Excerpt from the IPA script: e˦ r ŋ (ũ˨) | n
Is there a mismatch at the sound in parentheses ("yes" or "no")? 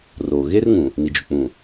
no